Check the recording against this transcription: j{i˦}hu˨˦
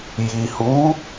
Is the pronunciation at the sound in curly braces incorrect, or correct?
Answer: incorrect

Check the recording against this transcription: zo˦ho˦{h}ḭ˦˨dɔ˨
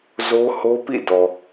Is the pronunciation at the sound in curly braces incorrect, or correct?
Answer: incorrect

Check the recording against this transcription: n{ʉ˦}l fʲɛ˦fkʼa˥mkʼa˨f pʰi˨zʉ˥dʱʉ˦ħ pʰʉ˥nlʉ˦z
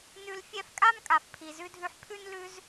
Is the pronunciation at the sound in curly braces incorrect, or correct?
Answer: correct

